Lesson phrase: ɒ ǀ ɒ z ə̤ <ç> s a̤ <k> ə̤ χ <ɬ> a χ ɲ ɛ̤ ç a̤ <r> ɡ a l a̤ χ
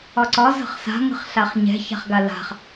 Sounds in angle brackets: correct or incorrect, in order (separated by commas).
incorrect, incorrect, correct, incorrect